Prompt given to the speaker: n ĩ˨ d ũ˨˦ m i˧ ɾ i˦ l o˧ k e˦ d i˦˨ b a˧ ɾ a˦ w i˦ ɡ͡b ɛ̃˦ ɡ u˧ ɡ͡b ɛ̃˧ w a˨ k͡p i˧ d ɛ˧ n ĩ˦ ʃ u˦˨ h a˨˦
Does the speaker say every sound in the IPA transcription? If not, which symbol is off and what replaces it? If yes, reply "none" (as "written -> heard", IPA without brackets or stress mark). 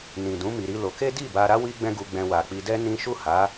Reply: none